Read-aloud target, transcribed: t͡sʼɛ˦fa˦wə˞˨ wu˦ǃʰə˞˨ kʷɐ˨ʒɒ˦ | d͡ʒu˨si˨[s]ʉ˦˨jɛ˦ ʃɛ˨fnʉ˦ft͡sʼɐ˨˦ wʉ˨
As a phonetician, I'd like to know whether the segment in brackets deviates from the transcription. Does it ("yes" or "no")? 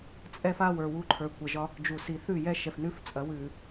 yes